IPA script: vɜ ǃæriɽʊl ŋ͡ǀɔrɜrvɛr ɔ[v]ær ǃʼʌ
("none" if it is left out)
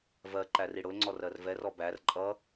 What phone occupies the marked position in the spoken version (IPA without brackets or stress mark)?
b